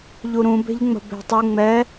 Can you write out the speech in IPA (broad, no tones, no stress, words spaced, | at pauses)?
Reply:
ʎuɾũ be̤ʎŋ͡mə̤be̤tˤu ŋ͡mɛ